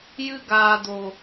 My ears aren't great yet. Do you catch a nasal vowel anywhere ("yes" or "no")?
no